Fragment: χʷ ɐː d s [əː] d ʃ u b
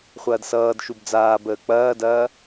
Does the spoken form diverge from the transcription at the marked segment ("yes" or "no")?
yes